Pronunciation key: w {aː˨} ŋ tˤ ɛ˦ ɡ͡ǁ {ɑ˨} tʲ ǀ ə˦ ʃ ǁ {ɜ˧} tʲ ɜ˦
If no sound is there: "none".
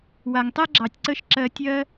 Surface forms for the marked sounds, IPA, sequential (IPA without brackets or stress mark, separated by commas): a˨, ɑ˨, ɜ˧